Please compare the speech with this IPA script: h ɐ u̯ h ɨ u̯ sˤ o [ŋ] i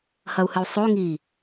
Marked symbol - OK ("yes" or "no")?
yes